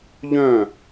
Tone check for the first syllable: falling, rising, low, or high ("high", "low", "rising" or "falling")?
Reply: falling